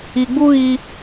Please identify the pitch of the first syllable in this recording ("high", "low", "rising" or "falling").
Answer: low